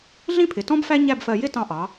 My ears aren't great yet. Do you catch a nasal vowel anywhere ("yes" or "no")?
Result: yes